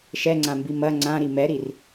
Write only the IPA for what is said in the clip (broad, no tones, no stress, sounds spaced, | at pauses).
ʃ ɛ ŋ͡ǀ ã m b i m ɐ ŋ͡ǀ ã ɾ i m ɛ ɾ i r